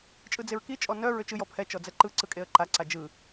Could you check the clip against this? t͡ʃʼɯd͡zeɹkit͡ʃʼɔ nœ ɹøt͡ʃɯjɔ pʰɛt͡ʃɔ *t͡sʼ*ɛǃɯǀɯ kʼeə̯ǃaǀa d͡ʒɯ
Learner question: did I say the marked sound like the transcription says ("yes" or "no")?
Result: no